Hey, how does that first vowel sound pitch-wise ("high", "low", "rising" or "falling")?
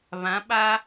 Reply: rising